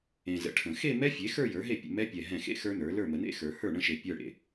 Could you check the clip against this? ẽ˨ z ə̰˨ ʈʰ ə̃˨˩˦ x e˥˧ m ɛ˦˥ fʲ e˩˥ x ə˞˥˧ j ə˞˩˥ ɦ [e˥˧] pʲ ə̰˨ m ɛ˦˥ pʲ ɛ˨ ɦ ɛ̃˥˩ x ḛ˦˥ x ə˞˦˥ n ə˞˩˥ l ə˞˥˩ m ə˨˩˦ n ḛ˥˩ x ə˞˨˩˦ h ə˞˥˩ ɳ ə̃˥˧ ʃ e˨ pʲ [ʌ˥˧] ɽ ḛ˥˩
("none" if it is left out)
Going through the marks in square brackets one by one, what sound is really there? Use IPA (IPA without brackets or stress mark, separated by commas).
e˥˩, ə˞˥˧